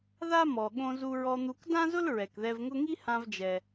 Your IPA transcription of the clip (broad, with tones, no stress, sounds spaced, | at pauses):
ð a˥ m ɔ˩ ɠ õ˧ z u˧ ɹ ɔ˧ n̪ u˧ k d ã˥ z ʊ˥ l ɹ ɛ˩ k ð ɛ˧ v ŋ ʊ˥ ŋ i˥ h ã˧ v d͡ʒ ɛ˩